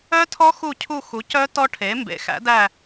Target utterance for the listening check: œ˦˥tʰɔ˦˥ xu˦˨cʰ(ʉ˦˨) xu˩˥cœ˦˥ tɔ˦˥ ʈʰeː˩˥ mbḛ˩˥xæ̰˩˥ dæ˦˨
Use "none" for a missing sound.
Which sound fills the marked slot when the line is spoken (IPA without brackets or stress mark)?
u˦˨